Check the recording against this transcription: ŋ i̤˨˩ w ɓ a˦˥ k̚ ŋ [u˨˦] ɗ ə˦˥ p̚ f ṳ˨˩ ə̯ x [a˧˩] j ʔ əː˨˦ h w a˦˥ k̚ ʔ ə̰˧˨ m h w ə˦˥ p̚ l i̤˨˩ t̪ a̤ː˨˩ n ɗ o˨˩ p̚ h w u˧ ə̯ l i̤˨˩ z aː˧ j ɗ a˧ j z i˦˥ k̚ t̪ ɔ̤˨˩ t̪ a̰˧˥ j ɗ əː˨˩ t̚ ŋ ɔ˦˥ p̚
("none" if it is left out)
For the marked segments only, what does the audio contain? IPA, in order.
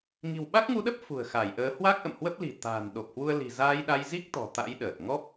u˨˦, a˧˩

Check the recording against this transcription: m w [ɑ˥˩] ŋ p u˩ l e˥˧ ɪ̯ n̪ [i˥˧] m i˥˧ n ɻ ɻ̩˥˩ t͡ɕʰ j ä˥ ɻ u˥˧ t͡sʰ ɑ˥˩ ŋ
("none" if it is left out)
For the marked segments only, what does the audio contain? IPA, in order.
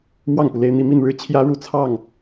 ɑ˥˩, i˥˧

